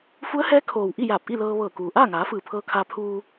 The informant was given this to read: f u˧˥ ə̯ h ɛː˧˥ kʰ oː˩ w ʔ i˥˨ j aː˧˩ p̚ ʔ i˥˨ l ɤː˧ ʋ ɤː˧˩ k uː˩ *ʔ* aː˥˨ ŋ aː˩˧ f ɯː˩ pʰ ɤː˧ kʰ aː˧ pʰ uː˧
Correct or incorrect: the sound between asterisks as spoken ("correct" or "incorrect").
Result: correct